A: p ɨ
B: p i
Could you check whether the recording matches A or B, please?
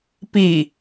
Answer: B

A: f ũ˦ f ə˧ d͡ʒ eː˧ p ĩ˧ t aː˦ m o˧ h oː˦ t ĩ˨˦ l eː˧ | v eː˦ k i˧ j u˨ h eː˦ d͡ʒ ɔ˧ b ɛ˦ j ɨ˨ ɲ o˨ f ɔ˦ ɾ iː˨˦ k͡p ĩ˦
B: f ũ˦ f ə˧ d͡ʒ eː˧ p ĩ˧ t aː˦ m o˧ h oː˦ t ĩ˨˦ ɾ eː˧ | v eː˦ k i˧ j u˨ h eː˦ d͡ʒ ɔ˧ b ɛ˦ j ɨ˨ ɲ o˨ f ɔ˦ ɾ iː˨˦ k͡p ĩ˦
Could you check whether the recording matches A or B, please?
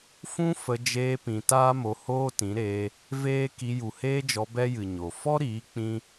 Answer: B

